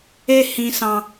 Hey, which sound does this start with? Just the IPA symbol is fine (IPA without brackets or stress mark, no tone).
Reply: e